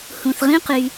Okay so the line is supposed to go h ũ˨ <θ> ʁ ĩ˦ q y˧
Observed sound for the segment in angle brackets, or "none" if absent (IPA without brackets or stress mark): θ